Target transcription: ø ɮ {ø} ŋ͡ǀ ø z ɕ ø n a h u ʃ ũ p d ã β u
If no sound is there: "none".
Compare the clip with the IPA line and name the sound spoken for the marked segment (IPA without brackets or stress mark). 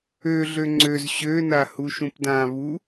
ø